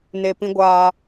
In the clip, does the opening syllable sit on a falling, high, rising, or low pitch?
low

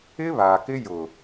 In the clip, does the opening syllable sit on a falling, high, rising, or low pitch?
high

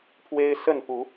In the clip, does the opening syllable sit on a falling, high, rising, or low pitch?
high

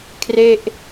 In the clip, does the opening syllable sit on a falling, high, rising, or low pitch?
falling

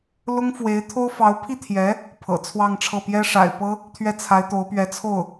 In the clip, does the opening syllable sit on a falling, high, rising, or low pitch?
high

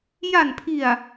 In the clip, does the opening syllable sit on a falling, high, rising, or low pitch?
low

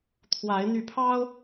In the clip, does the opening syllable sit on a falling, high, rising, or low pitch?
rising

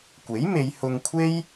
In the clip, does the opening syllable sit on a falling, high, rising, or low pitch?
rising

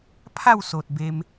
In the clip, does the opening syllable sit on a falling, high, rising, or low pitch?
falling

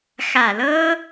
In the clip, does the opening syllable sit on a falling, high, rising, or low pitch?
low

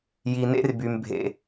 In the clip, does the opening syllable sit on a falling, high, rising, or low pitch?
low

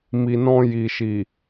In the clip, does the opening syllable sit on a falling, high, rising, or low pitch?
low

